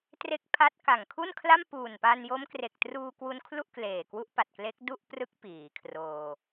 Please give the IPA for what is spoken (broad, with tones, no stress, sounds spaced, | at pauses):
t r e˦˥ k̚ pʰ a˦˥ t̚ k a˨˩ ŋ kʰ u˥˩ n kʰ l a˥˩ m p uː˨˩ n p a˧ n j o˦˥ m k r e˨˩ k̚ t r uː˧ k w u˧ n kʰ l u˥˩ ʔ k l eː˨˩ k w u˦˥ ʔ p a˨˩ t̚ k l e˦˥ k̚ d u˥˩ ʔ p r ɯ˦˥ k̚ p iː˩˦ kʰ r oː˧